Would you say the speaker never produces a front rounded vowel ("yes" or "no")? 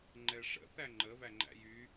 no